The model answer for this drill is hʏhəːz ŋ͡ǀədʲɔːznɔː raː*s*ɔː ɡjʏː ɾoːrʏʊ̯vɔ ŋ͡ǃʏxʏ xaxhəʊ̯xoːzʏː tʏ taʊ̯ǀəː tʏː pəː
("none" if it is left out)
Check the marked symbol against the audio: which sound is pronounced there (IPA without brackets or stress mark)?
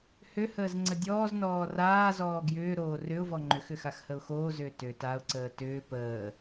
z